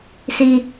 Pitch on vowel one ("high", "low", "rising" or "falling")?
low